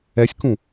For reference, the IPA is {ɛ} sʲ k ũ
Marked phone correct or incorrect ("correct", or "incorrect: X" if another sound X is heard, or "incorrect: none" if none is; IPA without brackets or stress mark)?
correct